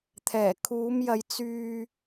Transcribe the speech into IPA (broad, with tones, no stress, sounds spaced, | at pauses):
t̪ʰ ɛː˨˩ kʰ uː˨˧ m j ɐ˨˧ j t͡s yː˧